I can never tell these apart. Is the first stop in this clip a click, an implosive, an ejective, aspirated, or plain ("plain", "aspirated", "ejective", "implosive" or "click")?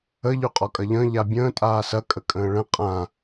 ejective